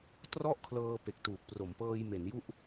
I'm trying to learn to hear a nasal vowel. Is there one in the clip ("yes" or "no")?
no